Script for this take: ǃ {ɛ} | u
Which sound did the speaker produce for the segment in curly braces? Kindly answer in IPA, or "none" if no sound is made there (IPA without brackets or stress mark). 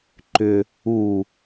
ʏ